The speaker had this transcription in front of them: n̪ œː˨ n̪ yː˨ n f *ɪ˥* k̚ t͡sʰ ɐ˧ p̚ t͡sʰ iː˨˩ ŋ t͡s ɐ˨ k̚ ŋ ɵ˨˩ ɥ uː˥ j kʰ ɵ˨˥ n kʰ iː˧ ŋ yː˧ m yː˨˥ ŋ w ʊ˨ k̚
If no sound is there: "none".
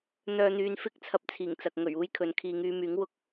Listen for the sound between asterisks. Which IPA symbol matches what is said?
ɪ˥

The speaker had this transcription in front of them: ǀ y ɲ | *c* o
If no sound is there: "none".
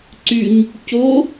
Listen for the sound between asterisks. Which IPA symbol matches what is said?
c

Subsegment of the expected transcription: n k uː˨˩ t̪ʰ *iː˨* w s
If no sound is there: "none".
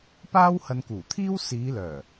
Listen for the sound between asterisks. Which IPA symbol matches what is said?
iː˥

